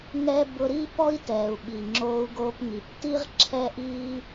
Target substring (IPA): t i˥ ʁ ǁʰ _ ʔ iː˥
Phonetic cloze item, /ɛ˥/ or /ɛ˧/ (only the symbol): ɛ˥